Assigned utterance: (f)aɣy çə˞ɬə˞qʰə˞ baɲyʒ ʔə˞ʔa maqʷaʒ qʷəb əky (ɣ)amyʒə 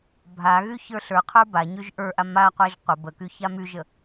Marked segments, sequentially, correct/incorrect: incorrect: bʱ, incorrect: ç

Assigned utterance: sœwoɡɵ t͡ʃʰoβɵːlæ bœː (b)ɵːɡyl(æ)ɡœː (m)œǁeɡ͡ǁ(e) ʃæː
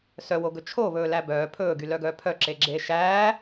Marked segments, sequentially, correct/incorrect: incorrect: pʰ, incorrect: œ, incorrect: pʰ, incorrect: eː

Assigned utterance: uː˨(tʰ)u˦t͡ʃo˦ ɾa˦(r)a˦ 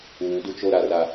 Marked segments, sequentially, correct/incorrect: incorrect: d, correct

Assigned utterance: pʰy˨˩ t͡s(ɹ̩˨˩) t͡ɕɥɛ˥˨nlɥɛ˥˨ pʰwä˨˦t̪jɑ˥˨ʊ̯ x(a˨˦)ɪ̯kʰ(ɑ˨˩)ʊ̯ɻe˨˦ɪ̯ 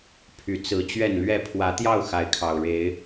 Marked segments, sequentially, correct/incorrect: incorrect: ɹ̩˨˦, correct, correct

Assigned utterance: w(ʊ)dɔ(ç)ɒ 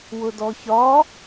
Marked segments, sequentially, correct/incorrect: correct, correct

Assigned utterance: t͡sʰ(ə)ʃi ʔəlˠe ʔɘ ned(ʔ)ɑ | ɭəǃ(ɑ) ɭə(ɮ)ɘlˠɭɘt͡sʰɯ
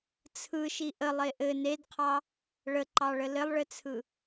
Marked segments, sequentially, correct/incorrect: incorrect: ɯ, incorrect: qʰ, correct, incorrect: l

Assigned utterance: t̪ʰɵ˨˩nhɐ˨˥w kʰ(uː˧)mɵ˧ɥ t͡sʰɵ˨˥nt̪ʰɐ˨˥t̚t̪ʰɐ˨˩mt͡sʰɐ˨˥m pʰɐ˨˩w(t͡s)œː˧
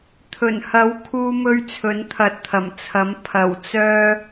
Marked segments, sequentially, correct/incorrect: correct, correct

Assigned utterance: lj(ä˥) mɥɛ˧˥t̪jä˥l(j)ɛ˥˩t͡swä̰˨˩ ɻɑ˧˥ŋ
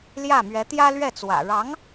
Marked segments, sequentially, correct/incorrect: incorrect: ä˥˩, incorrect: ɥ

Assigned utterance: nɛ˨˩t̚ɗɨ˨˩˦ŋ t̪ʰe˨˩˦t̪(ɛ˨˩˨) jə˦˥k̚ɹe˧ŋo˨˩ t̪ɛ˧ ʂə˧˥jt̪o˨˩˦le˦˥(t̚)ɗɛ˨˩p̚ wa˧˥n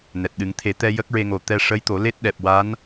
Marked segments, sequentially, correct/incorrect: incorrect: ɛ˧, correct

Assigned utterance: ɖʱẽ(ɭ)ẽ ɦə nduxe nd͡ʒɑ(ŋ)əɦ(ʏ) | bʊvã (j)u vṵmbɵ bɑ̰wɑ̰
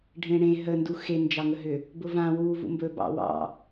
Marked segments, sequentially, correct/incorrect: incorrect: ɽ, correct, correct, incorrect: w

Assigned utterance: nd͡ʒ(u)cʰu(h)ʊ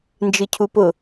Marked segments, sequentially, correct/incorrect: incorrect: ɯ, incorrect: p

